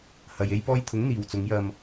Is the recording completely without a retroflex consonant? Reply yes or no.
yes